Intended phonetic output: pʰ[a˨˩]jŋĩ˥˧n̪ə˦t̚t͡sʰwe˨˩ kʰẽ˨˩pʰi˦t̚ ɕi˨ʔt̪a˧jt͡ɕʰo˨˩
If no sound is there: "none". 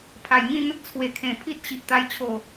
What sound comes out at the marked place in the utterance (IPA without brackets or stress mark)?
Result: a˨˩